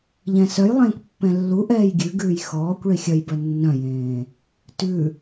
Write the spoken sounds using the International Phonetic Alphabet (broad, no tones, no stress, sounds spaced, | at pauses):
ʎ ɛ̃ s œ j lˠ ẽː kʷ pː ɛ̃ lː u ʔ ɛː j ɡʲ ʉ ɡ ʉː j x ɔː kʷ ɭ i xʲ œ j b œ nː œ̃ j ẽː | t ʉ